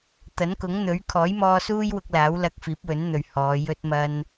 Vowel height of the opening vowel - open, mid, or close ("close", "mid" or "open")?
open